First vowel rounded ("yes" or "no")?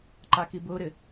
no